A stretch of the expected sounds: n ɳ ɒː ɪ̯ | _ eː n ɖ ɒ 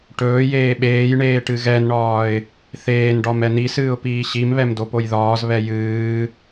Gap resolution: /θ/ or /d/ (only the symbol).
θ